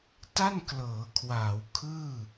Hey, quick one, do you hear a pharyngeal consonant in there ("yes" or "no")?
no